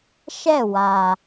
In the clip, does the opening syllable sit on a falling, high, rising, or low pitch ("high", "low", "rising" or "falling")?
falling